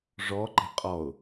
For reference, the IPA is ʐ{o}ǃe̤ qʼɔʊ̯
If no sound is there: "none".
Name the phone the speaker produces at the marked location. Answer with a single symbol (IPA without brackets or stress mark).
ɔ